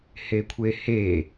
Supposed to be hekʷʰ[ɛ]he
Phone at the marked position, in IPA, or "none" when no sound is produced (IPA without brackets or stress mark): e